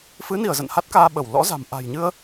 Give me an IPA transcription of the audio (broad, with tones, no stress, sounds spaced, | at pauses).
f ɨ˨˦ n i˧˩ ə̯ z ə̰˧˨ n h a˦˥ t̚ k aː˧ ɓ ə˧˩ w l ɔ̰˧˥ z a̤˨˩ m ʔ a̤˨˩ j ɲ ɨ˧ ə̯